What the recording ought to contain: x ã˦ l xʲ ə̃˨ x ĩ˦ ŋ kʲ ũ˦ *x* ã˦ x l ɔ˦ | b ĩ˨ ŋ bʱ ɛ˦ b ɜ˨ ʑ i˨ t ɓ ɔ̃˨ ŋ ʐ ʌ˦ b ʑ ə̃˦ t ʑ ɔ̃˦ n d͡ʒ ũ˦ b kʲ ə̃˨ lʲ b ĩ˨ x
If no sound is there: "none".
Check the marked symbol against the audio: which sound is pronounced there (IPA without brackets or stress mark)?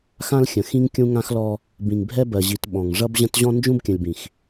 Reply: ŋ